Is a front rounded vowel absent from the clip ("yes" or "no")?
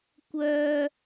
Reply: no